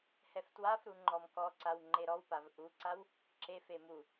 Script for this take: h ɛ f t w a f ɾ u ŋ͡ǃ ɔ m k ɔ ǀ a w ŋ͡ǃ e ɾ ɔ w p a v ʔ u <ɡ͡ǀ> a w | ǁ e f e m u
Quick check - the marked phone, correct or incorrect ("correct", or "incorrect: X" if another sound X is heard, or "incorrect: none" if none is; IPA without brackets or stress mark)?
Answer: incorrect: ǀ